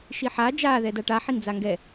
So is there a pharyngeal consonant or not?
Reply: yes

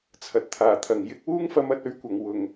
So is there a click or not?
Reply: no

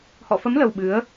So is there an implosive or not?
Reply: yes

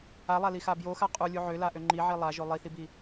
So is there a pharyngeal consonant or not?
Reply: yes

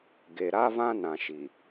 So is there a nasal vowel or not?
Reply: yes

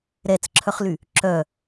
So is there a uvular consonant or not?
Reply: yes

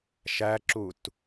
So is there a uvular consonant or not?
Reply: no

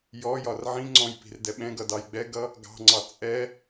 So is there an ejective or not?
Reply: yes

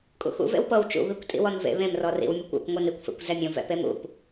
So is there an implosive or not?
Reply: no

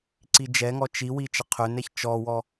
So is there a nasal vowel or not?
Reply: no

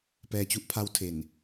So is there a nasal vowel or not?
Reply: no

